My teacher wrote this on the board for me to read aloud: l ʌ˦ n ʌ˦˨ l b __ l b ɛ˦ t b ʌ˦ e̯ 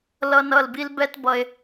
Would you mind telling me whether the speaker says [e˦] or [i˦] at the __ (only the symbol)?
i˦